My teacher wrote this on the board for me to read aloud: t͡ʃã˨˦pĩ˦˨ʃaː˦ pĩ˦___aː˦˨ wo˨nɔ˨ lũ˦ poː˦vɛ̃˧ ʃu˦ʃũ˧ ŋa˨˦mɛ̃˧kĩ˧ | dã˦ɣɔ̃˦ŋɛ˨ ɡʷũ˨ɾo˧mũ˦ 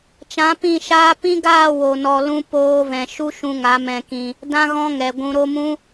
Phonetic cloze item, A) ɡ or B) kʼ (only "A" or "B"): A